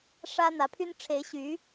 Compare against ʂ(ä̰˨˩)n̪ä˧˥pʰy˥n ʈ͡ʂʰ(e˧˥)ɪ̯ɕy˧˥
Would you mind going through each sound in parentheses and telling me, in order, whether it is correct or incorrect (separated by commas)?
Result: incorrect, correct